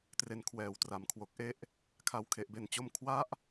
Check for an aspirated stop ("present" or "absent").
present